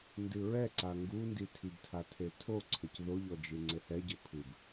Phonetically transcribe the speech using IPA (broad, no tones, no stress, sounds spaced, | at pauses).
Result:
n d ɨ ɹ ɛ ǀ a ŋ ɡ u n d i tʰ i b tʰ a tʰ e tʰ o ǀʰ ɘ c ð o ʎ ɔ d͡ʒ ɨ ŋ͡ǀ ɘ h ɛ ɟ ɘ pʰ ɨ b